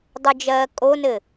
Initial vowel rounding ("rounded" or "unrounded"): rounded